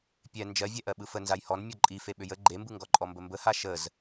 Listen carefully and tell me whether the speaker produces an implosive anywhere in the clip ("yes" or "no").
yes